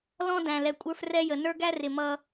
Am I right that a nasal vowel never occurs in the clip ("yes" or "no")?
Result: no